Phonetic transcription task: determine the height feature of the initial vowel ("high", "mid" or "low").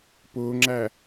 high